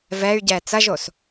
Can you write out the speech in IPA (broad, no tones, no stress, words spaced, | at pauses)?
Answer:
vɛy̯ɟɛ t͡sɐʒos